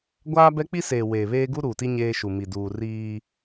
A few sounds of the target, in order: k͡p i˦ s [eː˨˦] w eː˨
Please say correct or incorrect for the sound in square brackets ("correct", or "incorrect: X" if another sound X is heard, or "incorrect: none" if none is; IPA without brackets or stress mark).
incorrect: eː˨